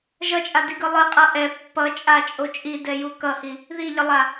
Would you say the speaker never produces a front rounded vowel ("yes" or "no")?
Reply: yes